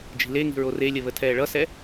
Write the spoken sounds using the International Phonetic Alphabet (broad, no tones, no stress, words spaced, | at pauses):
d͡ʒi̤leŋi̤ ɹorelʲə βətʰɛːɭʌsɛ